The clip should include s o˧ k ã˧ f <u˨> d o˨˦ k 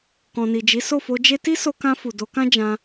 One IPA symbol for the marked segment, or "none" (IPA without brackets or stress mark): u˨